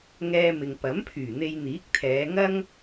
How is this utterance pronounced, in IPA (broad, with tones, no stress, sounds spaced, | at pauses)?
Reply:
ŋ ɛː˧ m ɪ˨ ŋ p ɐ˨˥ m pʰ yː˨˩ n̪ e˧ j n̪ iː˨˥ k̚ t̪ʰ ɛː˨˧ ŋ ɐ˥ ŋ